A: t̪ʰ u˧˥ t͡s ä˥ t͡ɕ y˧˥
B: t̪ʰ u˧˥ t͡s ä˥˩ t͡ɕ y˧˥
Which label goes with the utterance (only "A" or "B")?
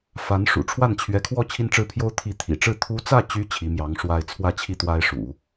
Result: B